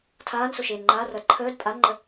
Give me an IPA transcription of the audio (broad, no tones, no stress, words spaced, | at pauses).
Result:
tʰaːnsoʃeːn ŋ͡ǃarʌd ǃʰəːd pʼanŋ͡ǃə